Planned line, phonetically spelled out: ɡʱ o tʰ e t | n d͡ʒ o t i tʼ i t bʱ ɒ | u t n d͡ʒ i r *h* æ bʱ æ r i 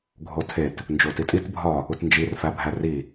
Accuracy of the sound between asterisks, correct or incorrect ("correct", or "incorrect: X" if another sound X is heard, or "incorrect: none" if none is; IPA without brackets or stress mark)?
incorrect: f